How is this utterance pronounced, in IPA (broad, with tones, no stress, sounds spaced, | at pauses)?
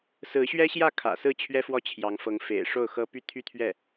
s ɹ̩˧˥ ɕ ɥ ɛ˥ ɕ j ä˥˩ kʰ ä̰˨˩ s ɹ̩˥˩ t͡ɕʰ ɥ ɛ˥ f w ɔ˥˩ t͡ɕʰ j ɑ˧˥ ŋ f ɤ˧˥ ŋ f ḛ˨˩ ɪ̯ ʂ o˥˩ ʊ̯ x ɤ˥ p y˥ t̪ʰ y˥˧ t̪ʰ ɥ ɛ˥˩